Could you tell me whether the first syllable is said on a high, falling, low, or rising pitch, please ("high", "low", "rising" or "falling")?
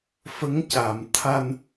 rising